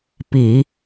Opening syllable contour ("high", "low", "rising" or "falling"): low